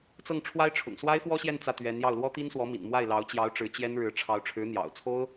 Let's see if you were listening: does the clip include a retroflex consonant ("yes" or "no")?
yes